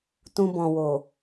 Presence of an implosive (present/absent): absent